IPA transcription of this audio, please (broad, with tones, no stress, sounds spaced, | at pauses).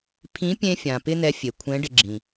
pʰ ĩ˧˥ pʲ ẽ˧ fʲ ã˩ p ɪ˥ n ɛ˧˥ fʲ e˩ kʷʰ ɛ̃˧˥ ɖ ɪ˧ ɡ͡ǁ ĩ˩